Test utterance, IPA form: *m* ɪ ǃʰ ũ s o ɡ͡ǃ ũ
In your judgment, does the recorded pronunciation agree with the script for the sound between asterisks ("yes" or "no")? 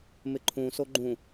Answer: yes